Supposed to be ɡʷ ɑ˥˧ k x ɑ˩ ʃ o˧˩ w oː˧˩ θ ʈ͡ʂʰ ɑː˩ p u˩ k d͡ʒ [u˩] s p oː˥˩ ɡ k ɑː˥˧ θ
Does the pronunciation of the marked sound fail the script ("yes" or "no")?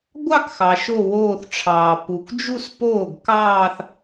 yes